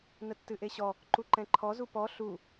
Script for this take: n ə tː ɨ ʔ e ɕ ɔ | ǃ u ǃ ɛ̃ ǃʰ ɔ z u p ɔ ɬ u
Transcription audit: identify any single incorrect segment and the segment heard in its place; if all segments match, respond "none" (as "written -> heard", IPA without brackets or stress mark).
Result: none